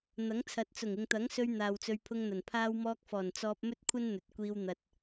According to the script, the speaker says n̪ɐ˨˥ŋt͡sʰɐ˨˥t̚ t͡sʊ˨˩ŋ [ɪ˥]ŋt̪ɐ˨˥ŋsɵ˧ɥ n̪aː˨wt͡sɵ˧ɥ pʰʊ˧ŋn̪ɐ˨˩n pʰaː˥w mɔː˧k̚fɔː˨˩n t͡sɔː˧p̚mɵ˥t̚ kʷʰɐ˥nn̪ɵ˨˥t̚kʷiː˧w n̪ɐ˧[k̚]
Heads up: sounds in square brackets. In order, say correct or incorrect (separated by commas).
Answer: incorrect, incorrect